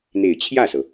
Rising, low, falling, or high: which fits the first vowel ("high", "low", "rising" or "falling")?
low